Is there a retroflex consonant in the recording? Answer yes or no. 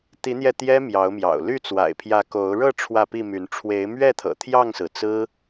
yes